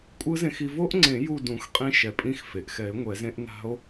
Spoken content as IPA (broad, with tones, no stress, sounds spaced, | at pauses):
kʷʼ ɯ˦˥ z ẽ˧ x i˧ v o˦˥ ʔ ŋ͡ǀ ẽ˨˩˦ j u˥˨ d ũ˨˩˦ x qʼ ĩ˦˥ ʃ ɛ˩ pʼ ĩ˦˥ x f e˩ ʔ x ɛ˨˩˦ e̯ ŋʷ ɛ˨˩˦ z ẽ˦˥ ʔ n a̤˦˥ o̯